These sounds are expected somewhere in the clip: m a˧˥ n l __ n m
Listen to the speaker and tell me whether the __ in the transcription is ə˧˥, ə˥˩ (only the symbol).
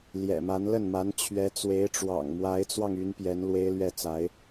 ə˥˩